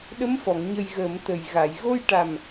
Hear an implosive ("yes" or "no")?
yes